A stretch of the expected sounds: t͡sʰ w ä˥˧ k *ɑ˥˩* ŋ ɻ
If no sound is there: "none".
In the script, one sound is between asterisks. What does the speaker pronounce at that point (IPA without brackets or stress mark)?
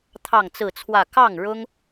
ɑ˥˩